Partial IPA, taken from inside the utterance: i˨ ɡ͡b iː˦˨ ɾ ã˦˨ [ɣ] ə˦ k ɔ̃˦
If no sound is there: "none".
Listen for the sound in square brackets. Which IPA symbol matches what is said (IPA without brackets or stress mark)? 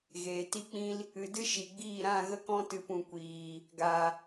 ɣ